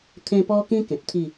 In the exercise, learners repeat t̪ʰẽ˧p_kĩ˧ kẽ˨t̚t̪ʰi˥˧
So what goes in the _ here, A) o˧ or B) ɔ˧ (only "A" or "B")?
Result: B